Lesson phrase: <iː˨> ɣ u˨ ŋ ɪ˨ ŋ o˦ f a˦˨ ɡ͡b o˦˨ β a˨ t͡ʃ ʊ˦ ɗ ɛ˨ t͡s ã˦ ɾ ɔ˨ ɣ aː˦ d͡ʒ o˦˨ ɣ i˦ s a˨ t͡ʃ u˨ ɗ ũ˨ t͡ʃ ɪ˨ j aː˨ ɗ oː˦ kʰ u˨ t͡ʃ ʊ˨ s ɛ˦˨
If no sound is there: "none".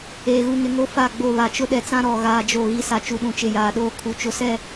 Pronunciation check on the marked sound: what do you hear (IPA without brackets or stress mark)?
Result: eː˨